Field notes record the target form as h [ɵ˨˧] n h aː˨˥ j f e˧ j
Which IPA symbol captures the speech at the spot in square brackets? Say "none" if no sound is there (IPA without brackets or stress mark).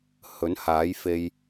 ɵ˨˥